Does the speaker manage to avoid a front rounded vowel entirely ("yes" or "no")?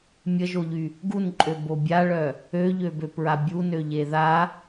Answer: no